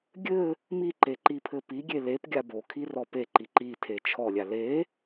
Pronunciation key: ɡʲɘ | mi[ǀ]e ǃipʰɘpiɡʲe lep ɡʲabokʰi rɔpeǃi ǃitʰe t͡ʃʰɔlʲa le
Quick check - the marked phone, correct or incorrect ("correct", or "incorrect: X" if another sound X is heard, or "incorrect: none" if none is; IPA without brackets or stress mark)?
incorrect: ǃ